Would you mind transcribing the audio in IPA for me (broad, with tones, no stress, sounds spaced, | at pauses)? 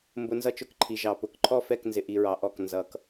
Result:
m b ʊ˧ n z ʌ˦ t͡ʃ ʊ˧ k ǃʰ i˨ ʒ ɑ˨ p ʊ˨ k ǃʰ ɔ˦˨ f ɛ˦˨ k n z ɪ˧ ʔ i˧ ɹ ɑ˧ ʔ ɔ˦˨ k n z ʌ˧ k